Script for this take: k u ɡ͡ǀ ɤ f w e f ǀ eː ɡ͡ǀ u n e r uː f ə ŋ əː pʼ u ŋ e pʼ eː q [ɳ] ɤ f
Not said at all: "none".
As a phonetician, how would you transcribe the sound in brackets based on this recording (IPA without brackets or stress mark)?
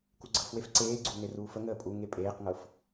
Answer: ŋ